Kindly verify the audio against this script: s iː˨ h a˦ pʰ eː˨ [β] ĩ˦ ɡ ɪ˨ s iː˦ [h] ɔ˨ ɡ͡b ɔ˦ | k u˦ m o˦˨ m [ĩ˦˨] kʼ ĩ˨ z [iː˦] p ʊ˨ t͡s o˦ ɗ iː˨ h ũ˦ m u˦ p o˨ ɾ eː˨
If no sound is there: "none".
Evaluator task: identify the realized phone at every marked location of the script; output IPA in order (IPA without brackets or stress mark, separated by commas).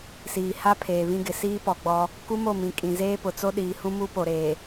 β, p, ĩ˨, eː˦